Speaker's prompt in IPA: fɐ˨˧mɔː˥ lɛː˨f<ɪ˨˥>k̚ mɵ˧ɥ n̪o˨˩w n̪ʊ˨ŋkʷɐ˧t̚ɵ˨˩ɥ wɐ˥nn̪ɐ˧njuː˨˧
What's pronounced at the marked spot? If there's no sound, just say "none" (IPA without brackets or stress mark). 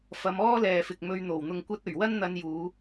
ɪ˨